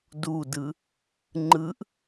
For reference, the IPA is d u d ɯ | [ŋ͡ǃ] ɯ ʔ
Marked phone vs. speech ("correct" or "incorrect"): correct